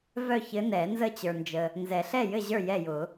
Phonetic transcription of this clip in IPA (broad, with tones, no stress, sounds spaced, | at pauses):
v œ˥˨ ç ɘ˧˥ n ɛ˨˩˦ n z ə˥˨ t͡ɕ ə˞˨ n d͡ʒ ə˨ | n z ɛ˨˩˦ ɬ ɛ˥˨ j ɘ˥˨ ʑ ə˞˥˨ j ɛ˥˨ j ʊ˨˩˦